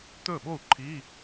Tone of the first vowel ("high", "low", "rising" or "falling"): falling